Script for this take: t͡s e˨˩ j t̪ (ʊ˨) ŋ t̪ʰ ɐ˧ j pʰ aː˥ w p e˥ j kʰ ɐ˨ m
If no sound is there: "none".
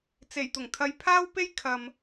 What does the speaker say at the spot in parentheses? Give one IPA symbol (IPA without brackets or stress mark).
ʊ˨˩